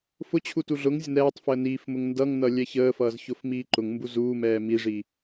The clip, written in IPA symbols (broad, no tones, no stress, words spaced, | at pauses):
fʊt͡ɕʰu tuɮʊŋzʲʊ nɛːtˤfəː niːfmʊŋ ndʌŋnʌ lʲɛçəːfʌːz çʊfmiːǃʊŋmbu zuːmɛː miʐi